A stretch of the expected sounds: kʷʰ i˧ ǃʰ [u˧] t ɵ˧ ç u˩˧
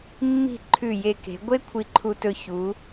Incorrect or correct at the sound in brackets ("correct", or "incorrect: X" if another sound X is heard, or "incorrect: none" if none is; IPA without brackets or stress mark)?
correct